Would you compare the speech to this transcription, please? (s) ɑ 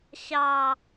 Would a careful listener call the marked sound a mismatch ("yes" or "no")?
yes